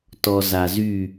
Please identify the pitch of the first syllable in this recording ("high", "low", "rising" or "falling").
low